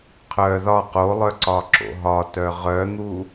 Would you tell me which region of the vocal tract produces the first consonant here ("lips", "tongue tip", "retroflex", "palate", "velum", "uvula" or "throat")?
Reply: uvula